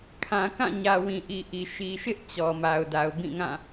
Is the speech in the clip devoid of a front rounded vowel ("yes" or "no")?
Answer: yes